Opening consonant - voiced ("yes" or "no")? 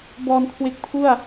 yes